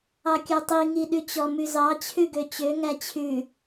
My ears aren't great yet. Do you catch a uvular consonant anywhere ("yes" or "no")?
no